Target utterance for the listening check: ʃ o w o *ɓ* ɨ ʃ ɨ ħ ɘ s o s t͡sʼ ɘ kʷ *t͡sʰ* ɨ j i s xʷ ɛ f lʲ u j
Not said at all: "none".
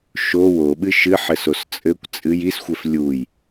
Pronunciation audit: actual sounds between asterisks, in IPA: ɓ, t͡sʼ

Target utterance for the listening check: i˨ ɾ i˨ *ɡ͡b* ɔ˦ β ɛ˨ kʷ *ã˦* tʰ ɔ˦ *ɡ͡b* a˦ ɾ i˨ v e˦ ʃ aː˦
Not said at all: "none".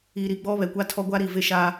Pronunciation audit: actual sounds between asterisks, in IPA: ɡ͡b, a˦, ɡʷ

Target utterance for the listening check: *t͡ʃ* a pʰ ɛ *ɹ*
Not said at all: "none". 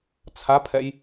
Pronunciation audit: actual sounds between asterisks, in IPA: t͡sʰ, j

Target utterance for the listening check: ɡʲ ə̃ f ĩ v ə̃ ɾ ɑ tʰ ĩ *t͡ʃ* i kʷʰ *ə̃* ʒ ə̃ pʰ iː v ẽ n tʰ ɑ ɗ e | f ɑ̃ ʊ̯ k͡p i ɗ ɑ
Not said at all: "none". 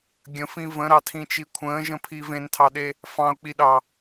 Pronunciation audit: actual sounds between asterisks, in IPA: t͡ʃ, ə̃ː

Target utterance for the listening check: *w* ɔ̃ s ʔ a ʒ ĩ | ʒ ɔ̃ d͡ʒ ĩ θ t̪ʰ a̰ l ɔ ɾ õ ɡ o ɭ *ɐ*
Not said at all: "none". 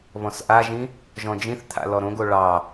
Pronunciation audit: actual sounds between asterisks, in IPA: β, ɑ

